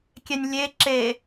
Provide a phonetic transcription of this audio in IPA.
kʲ ɛ nʲ lʲ e ǁ e

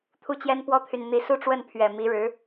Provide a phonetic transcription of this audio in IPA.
t̪ʰ u˥˩ t͡ɕ j ɛ˥ n p w ɔ˥ t̪ʰ y˨ n n̪ i˧˥ s u˥˧ ʈ͡ʂ w ə˥˩ n pʰ ɥ ɛ˨˩ m i˧˥ ɻ ɻ̩˧˥

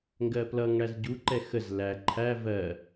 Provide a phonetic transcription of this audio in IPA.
ŋ ɡ ɜ p l ʌ ŋ ɽ æ z ɟ u ǃ ɛ x ə z l æ ǃʰ æ v ɜ

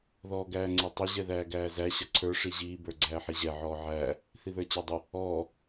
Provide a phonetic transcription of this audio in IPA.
ð ɔː ɡ æː ŋ͡ǀ ɛ tˤ ɪ ʑ ɛ ð æː ɡ æː z æ ɕ ʌ ǀʰ ə˞ ʂ i ʑ iː b ə˞ ɡ͡ǀ æː ħ i ʑ ɛ ʕ ɔː ʕ æː | θ i ð ə˞ t͡ɕ æ dˤ ɪ | ɔː

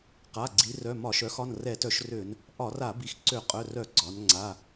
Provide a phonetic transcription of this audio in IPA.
q a˩˧˩ ɡ͡ǀ i˩˧ r œ˩˧˩ m ɒ˧˩˧ ʃ œ˩˧ x ɒ˩˧˩ n r ɛ˧˩˧ t œ˧˩˧ ʃ r ø˧˩˧ n | ʔ ɒ˧˩˧ r a˧˩˧ b i˩˧ x ǀ ø˧˩˧ qʼ œ˩˧˩ r œ˧˩˧ ɡ͡ǀ ɒ˩˧ n ŋ͡ǀ a˩˧˩

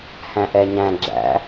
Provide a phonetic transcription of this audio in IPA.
h æ̃ ʔ ɛ ɲ æ̃ ɡ͡ǁ æ̰

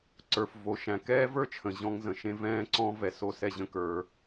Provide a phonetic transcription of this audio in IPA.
ǀ ə˞˩ f v o˩ ʃ æ̃˩ k ɛː˥ v ə˞˥ t͡ʃʰ ə̃˩ ʑ ɔ̃˧ ŋ z ə̃˩ ʃ ẽ˧ v ɛ̃ː˧ ǀ ɔ̃˧ v ɛ˩ s o˥ s ɛ˥ ʑ ə̃˥ k ə˞˧

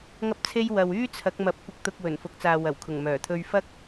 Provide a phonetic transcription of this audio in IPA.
ŋ ɐ˥ p̚ t͡sʰ e˥ j w ɐ˨ w yː˥ t͡sʰ ɐ˨˥ k̚ m ɐ˨˥ p̚ kʷ ɪ˧ k̚ t̪ ʊ˧ k̚ w ɵ˨˩ n f ʊ˨˥ k̚ t͡s aː˨ w ɐ˨˩ w kʰ ʊ˨˩ ŋ m œː˨˩ t̪ʰ ɵ˧ ɥ f ɐ˥ k̚

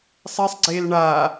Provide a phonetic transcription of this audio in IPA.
sˤ e sˤ ɡ͡ǀ eː l ɳ a

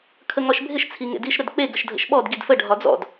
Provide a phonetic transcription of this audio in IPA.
kʰ ə ŋ ɒ ʃ bʱ ɪ ʃ t͡sʰ i ŋ ḛ d i ʃ ɾ ə d k͡p e ɡ ə ʃ dʱ ə̰ ʃ ɓ ɔ d ɡ i d f ə ɖʱ ɒ d͡z ɔ̰ d

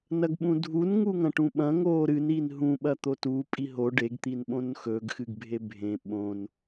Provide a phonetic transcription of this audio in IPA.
n ɐ ɡ ɓ ũ dʱ u n ŋ u ŋ ɐ̃ ʈ ũ ɓ ɐ̃ ŋ oː ɾ ɨ n i n ɦ ũ ɓ ɐ t̪ o t u pʼ i ɦ o ɖ e ɡ t̪ i n ɓ õ n x ɵ ɡ x ɨ ɡ bʱ e bʱ ẽ ɓ õ n

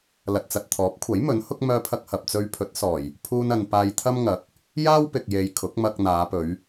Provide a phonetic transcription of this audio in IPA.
l ɐ˨ t̚ t͡s ɐ˨ t̚ t̪ʰ ɔː˨˥ p̚ kʷʰ ɐ˨˥ j m ɵ˨˥ n h ʊ˥ k̚ m œː˧ pʰ ɐ˧ k̚ h ɐ˨ p̚ t͡s ɵ˧ ɥ pʰ ɵ˨˥ t̚ s ɔː˨˩ j | pʰ uː˥ n ɐ˧ n p aː˧ j t̪ʰ ɐ˥ m ŋ ɐ˨˥ k̚ | j aː˥ w p ɪ˨ k̚ j e˨˧ j kʰ ʊ˨˥ k̚ m ɐ˧ k̚ n̪ aː˨˧ p ɵ˨˧ ɥ

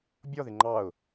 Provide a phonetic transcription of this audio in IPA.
bʲ ɔ ð ɪ ŋ͡ǃ ɑ ʊ̯

